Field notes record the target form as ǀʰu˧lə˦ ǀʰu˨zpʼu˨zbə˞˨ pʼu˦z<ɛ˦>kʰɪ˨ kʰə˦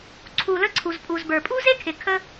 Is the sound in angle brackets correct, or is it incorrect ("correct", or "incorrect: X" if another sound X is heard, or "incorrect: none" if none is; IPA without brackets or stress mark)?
incorrect: e˦